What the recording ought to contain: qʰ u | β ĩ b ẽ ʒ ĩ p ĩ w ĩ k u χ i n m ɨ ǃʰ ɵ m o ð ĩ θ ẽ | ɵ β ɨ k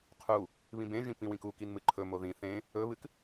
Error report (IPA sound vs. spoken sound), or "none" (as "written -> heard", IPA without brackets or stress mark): χ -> k